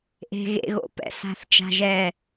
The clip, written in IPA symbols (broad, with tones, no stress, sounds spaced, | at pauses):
ʔ e̤˥ ɣ ḛ˥ ɣ o̰˧ p ɛ̰˩˧ s a̤˥˧ θ t͡ʃ a̤˥ ʒ ɛ˥˧